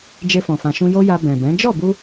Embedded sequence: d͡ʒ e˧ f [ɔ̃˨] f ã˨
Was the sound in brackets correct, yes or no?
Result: yes